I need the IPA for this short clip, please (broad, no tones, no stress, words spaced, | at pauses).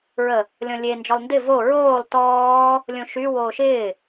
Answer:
ɹə | lʲɔ̃lʲe nd͡ʒɔlˠndɪ vo ɹoːlˠ tɔː | lʲõʃy woːʃɪː